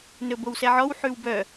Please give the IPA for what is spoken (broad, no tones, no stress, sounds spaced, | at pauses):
n ɵ b o w s ɛ ʕ ɔ w ħ ʉ w b œ